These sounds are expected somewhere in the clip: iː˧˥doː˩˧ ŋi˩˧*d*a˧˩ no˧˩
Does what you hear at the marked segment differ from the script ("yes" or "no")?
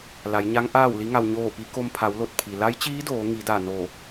no